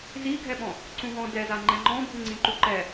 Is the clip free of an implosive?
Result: no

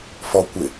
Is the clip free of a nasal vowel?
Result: yes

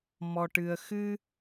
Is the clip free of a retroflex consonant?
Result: no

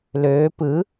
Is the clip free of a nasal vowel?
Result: yes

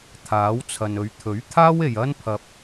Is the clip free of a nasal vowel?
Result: yes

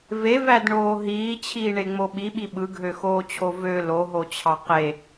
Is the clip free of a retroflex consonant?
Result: no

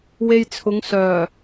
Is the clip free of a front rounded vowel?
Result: no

